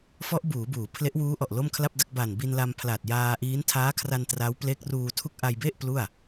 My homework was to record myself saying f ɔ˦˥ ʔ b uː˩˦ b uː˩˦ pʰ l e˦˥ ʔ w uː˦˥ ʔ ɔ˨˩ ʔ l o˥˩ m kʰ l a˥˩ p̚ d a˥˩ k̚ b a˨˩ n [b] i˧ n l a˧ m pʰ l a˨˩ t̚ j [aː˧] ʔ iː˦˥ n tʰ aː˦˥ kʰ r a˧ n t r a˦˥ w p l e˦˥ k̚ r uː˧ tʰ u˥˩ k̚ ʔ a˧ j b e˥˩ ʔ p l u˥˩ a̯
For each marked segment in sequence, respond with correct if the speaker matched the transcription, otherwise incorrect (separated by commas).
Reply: correct, correct